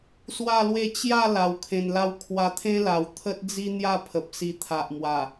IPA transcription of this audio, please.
s w a˥˧ l w e˥˧ t͡ɕ j a˥˧ l a˧ w kʰ ẽ˧ n l a˥˧ w kʰ w a˧ t̪ʰ ẽ˦ l a˨˩ w t̪ʰ ə˦ t̚ d͡z i˦ n̪ j a˥˧ pʰ ə˨ p̚ s i˧ t̪ʰ a˨ ʔ m w a˨˩

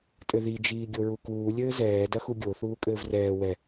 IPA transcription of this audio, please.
tʼ ɘ ð i d͡ʒ iː ɡʲ o ɹ u k uː lʲ ɘː z ɛː d ɐ x u ɡʲ o θ uː kʼ ɘː v r ɛː w ɛ

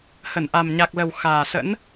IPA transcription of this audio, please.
h ə˧˩ n ʔ a˨˩ m ɲ a˨˩ k̚ l ə˨˩ w x aː˨˩ s ə̰˧˥ n

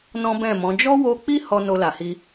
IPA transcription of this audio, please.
n ɔ̃˦ b ɛ̃˦˨ m ɔ̃˨˦ d͡ʒ ɔ˦ w o˧ k͡p i˦ h ɔ˧ n o˧ l a˨ h i˧

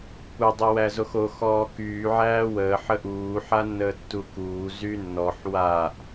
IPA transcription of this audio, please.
kʷ ə dˤ o w æ z o x o x ɔː k yː ʕ æː w əː ħ ə ʔ uː ħ a nː əː tː u k uː z y nː ɔ ħ w a ʔ

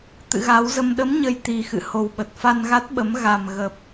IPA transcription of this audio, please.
t̪ ɨ̰˧˨ ɣ a˨˦ w z ə˧ m ɗ ə˨˦ m ɲ ə˨˩ j t̪ i˨˩ x ɨ̰˧˨ h o˨˩ w ɓ ə˨˩ t̚ f a˧ n ɣ a˦˥ t̚ ɓ ə˨˦ m ɣ a˨˩ m ɣ ə˨˩ p̚

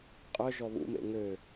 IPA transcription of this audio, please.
qʼ œ ʒ ɔ β ṵ m ḛ ŋ ø

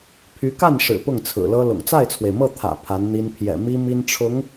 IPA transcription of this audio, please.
pʰ y˧˥ k a˥˩ n ʂ ɻ̩˨˩ p ʊ˥˩ ŋ t͡sʰ ɹ̩˨˩ l ɤ˥ l ʊ̰˨˩ ŋ t͡s a˥˩ ɪ̯ t͡sʰ w e˩ ɪ̯ m ɤ˥˩ t̪ʰ ä̰˨˩ pʰ a˧˥ n n̪ i˥ n pʰ j ɛ̰˨˩ m i˥ m i˥ n ʈ͡ʂʰ ʊ˧˥ ŋ

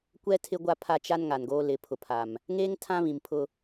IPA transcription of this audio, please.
kʷ ɛ˦ tʰ ɪ˦ ɡʷ a˦ pʰ a˦ t͡ʃ a˦ n ŋ a˨ n ɡ oː˦ l ɪ˨˦ pʰ ʊ˨ pʰ a˨ m | ŋ eː˦ ŋ tʰ ã˦ β ĩ˨ m pʰ ʊ˦

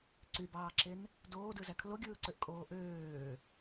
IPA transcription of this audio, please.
ǀ y b ɑː ǁ e n | d oː d ɯ z æ kʰ l o ɡʲ ɯː ǀ ø ʔ kʼ oː ʔ øː

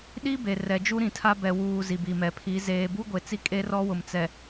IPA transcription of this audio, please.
ɗ i˦ b e˨ r ɛ˨ d͡ʒ u˦ ɾ ĩ˨ tʰ a˦ b ɛ˨ w uː˨ z i˨ b i˨ m ɛ˨ pʰ i˨˦ z eː˨ b u˦ ɡʷ e˨ t͡s i˦ kʼ e˦ r ɔ˦ w ʊ˨ m t͡s ɛ˨

